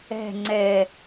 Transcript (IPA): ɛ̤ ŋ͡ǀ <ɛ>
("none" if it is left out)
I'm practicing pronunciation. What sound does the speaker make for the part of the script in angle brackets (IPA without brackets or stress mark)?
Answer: ɛ